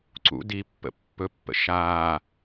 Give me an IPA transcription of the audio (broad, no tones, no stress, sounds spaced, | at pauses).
ǀ ṵ d i pː ə̰ pː ɵ pː ə̰ ʃ aː